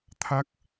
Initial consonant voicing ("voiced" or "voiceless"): voiceless